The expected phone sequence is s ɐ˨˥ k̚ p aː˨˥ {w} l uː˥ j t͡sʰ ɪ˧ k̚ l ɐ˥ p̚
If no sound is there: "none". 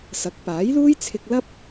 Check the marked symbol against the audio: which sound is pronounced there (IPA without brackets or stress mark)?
j